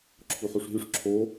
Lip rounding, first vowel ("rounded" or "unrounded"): rounded